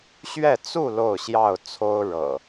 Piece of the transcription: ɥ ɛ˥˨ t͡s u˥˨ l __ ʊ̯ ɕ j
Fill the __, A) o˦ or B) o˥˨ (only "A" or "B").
B